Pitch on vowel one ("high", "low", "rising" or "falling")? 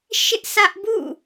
high